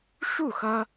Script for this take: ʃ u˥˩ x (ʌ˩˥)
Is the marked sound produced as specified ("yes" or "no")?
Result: no